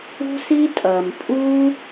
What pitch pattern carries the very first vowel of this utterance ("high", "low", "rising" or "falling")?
high